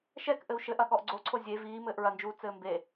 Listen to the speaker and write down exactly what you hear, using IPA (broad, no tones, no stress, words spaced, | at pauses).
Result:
ʃɛkʔɘu̯ ʃɘʔɐ ɠɔʔɡ͡ǀoǀʰo zʲe viːmɘːʔ ɹɐnd͡ʒuː t͡sɘːmbe